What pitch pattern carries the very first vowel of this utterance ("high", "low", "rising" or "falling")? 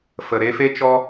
low